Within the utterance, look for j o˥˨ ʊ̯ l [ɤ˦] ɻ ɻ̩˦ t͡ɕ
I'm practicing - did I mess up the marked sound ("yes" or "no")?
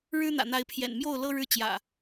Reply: no